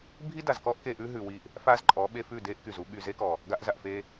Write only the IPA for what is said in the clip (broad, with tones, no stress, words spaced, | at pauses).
bʱi˦da˨zkɔ˦ʔ ke˧ʔʉ˦ ɦʉ˨wi˧ʔ | fa˦zǃʼɔ˨˦ ɓe˧fʉ˦˨de˦ʔ ky˨zu˦ ɓy˨ ze˦kɔ˨ | ɡa˧ʔza˨ʔfe˧